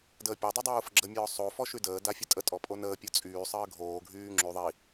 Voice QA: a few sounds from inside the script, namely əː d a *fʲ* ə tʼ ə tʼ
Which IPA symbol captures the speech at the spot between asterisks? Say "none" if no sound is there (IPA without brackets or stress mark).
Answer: fʲ